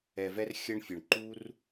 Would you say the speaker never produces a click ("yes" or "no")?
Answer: no